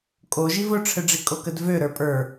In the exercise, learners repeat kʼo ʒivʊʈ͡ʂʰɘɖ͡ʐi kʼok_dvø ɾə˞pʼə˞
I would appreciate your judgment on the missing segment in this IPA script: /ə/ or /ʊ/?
ə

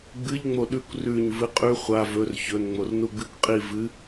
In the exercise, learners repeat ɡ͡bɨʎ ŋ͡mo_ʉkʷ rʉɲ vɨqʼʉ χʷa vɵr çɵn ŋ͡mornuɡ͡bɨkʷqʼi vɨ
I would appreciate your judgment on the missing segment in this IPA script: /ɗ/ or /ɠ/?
ɗ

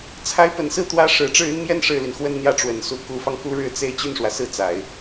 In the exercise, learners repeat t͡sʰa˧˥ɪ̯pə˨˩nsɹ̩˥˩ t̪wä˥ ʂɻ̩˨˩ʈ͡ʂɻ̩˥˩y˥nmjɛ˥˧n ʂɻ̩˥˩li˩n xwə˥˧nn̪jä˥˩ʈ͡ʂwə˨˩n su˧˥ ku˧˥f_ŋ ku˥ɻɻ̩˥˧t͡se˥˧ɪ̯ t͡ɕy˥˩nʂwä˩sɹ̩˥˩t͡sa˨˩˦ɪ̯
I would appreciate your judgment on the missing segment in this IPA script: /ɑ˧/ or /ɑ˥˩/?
ɑ˧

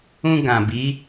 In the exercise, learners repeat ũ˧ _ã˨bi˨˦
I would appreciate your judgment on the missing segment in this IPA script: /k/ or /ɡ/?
ɡ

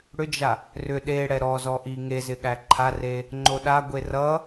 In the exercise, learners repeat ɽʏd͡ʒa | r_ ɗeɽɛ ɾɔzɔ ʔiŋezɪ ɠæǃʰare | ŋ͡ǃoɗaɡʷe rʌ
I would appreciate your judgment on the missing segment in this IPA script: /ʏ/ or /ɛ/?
ʏ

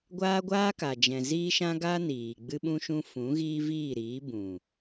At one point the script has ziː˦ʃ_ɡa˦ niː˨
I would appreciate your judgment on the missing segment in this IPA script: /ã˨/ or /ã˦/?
ã˦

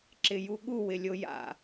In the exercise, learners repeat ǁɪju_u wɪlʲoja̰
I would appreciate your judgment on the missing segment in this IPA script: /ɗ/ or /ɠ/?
ɠ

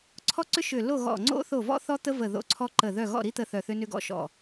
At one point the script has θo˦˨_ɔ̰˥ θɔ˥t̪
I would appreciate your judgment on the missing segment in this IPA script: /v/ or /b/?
v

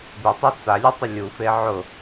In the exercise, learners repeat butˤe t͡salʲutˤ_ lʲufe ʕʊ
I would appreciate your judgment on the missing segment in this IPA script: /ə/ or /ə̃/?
ə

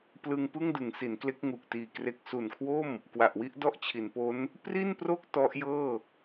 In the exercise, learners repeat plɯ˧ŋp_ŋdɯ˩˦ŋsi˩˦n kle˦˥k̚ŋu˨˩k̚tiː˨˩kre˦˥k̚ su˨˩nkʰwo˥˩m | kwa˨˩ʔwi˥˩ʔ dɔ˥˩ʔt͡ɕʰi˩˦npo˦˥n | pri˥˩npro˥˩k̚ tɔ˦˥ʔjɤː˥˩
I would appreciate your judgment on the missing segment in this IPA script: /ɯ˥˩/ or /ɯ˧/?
ɯ˥˩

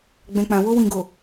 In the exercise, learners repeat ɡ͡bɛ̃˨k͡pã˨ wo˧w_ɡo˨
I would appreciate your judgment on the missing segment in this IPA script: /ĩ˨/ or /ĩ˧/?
ĩ˨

